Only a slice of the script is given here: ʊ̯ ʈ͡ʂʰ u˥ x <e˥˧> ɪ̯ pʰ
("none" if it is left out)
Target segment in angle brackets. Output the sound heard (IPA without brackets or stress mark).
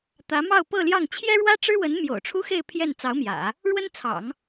e˥˧